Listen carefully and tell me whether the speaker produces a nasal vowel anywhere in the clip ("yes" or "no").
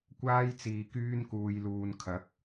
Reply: no